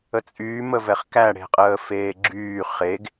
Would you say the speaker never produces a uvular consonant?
no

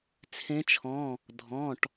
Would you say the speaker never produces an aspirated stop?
no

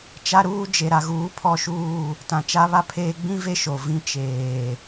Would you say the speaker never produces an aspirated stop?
no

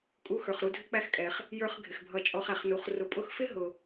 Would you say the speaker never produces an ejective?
no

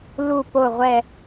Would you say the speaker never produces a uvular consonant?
no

